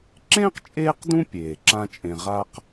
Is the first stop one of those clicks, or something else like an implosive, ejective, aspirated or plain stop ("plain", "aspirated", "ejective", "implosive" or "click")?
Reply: click